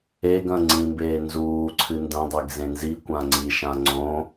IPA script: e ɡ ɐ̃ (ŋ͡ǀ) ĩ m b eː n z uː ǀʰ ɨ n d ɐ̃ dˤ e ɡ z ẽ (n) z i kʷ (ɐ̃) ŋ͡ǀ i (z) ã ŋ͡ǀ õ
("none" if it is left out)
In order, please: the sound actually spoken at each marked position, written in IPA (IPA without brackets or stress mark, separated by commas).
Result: ŋ͡ǀ, n, ã, ʃ